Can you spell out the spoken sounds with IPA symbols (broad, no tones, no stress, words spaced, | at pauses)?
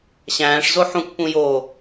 ɕæ̃ːʂzo ħũkpũjoː